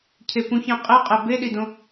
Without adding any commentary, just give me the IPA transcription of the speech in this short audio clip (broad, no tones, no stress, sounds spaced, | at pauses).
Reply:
cʰ e p ũ ç ɛ̃ qʼ e qʼ ɛ b e ɗ i d õ